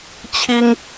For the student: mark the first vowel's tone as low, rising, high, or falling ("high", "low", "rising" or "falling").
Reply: high